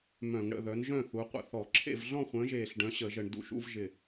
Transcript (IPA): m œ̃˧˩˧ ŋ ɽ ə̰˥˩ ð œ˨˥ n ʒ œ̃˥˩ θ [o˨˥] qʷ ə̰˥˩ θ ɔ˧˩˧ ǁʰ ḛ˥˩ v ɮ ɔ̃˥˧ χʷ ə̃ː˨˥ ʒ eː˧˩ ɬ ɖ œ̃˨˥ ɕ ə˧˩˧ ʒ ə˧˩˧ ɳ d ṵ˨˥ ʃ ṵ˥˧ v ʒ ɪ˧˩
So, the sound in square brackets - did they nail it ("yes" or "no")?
no